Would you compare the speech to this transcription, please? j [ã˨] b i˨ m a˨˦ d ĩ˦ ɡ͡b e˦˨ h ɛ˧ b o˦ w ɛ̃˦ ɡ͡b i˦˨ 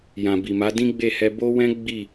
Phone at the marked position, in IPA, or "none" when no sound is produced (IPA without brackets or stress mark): ã˨